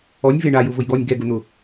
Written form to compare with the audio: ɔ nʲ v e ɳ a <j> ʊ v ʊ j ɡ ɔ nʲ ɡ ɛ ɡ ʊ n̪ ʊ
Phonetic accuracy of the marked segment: correct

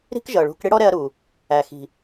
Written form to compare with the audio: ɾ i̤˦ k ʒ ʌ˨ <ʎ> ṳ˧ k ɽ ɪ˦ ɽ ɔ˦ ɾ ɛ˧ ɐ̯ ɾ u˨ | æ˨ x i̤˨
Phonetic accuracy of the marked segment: incorrect: ɭ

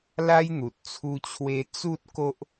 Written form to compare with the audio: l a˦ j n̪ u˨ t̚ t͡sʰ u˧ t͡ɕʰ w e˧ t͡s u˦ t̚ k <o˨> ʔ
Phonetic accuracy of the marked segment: incorrect: o˦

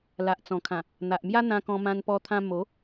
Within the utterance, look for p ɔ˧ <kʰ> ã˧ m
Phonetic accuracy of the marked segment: incorrect: t̪ʰ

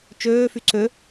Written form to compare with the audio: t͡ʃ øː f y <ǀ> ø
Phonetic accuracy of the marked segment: correct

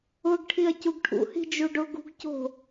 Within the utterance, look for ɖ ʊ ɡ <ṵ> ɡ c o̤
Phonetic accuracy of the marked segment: incorrect: ṳ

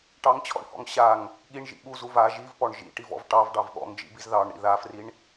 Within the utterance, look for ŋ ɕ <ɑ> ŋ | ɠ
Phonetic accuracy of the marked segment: incorrect: a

